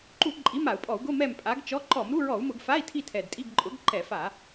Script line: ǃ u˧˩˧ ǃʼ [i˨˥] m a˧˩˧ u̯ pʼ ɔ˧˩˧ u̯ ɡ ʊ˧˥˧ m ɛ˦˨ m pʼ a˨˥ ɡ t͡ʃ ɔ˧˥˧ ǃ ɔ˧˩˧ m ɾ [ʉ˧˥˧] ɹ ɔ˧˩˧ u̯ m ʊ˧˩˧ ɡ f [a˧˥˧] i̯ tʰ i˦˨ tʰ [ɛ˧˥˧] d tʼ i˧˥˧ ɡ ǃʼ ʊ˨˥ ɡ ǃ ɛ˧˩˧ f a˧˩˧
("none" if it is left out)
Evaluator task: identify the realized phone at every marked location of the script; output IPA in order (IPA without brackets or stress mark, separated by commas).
i˨˥, u˧˥˧, a˧˥˧, ɛ˨˩